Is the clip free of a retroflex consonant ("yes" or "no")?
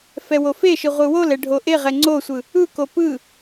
no